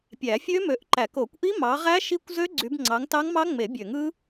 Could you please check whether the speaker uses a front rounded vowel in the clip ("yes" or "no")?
yes